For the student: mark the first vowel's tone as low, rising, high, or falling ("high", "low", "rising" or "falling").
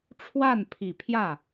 falling